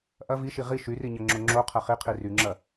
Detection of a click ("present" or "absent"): present